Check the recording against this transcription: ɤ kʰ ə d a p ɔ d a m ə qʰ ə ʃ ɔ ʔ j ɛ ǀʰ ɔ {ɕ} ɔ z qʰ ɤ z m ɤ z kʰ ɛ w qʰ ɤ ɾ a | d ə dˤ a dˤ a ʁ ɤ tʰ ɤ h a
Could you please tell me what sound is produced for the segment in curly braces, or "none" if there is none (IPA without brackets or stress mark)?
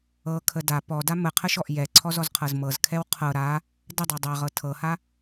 z